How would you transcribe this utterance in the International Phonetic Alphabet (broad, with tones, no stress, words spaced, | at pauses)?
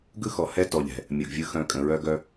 ɡɯ˦xɔ˨ hɛ˦ tɔ˨ʎɛ̤˨ | mʲɯ˨ɡvʲɯ˧ xœ̃˧ kʼə̃˨ɹœ˦ɡœ˦